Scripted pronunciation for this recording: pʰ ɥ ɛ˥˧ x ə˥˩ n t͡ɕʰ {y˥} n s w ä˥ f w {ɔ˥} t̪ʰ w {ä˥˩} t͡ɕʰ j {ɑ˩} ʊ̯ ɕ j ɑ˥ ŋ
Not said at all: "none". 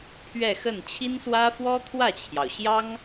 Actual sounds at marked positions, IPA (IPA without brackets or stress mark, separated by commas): i˥, ɔ˥, ä˥˩, ɑ˩